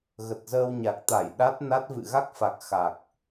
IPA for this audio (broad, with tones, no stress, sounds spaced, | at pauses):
ɣ ə˨˩ t̚ z əː˧ w ɲ a˨˩ k̚ t̪ a˧˩ j ɗ a˦˥ t̚ n a˦˥ t̚ v ɨ̰˧˨ ɣ a˦˥ k̚ f a˨˩ k̚ x a˨˩ k̚